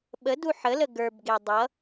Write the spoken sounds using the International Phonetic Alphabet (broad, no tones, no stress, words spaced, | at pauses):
ɓədu ħələ ɡə˞bɡe dˤʌ